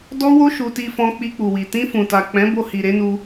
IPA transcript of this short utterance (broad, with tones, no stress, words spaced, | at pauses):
dɔ˦wo˦ ʃu˧ti˧fɔ̃˧ k͡pi˧k͡pu˨wi˨ tĩ˧ fũ˨ta˨k͡pɛ̃˨˦ bo˧hi˨ɾe˨˦nu˧